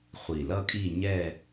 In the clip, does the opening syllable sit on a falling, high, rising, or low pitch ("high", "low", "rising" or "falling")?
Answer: low